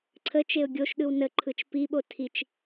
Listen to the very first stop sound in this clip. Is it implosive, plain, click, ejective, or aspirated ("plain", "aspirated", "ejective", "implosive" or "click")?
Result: click